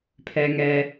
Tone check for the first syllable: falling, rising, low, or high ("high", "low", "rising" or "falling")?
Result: low